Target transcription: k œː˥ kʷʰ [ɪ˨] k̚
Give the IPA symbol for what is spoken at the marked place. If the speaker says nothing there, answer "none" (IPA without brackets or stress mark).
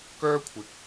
ɪ˨